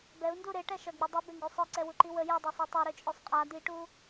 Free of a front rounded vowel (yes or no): no